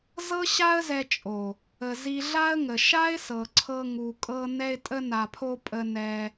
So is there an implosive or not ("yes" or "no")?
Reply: no